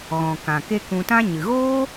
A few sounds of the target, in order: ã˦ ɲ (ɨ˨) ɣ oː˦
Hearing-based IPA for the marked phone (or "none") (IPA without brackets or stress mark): ɨ˨